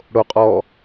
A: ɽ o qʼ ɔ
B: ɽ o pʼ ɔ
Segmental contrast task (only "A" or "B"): A